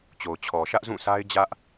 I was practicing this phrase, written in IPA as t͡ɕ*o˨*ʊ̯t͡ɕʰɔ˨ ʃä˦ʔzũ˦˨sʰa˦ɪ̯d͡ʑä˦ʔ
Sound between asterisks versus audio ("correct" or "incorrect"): correct